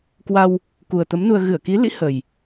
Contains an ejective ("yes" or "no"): no